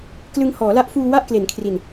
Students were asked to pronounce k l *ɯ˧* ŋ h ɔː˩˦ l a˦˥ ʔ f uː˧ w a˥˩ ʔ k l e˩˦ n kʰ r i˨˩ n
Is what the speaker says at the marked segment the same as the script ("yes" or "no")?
yes